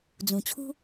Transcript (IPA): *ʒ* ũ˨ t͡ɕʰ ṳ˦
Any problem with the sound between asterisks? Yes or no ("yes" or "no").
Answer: yes